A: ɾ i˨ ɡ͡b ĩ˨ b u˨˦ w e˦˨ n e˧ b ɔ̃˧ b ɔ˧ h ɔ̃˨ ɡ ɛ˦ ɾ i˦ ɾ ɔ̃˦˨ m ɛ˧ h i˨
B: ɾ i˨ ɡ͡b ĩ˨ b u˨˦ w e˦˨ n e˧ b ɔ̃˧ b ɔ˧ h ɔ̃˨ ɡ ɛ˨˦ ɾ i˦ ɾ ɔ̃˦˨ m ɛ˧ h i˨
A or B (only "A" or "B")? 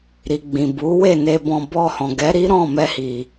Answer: B